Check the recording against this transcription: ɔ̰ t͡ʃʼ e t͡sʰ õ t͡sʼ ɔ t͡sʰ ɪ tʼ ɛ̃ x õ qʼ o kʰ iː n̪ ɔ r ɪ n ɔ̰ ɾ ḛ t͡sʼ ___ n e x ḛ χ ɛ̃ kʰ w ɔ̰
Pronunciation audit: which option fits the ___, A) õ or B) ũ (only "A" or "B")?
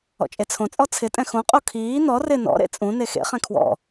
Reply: B